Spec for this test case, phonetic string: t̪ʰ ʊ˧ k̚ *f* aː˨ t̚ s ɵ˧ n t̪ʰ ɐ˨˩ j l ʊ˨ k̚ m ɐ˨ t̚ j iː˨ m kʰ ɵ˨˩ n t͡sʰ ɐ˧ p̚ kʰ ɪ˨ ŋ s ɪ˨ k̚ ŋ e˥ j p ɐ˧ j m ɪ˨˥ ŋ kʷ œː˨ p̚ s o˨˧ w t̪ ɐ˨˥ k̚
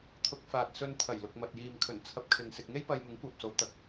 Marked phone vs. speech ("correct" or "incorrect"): correct